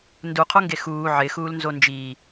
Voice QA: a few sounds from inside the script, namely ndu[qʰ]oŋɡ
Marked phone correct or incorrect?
correct